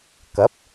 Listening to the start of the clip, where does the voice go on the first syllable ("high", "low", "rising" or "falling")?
rising